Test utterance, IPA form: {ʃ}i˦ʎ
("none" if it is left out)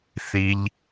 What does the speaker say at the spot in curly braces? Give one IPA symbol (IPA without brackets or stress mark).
θ